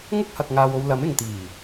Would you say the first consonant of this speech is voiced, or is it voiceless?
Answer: voiced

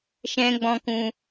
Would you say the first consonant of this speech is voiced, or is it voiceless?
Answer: voiceless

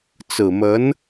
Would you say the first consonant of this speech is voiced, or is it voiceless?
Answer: voiceless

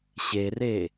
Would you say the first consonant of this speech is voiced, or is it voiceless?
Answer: voiceless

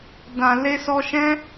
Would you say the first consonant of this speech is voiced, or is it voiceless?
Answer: voiced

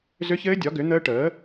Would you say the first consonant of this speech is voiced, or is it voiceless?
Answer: voiced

